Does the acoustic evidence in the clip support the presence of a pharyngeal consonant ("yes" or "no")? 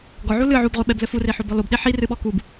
yes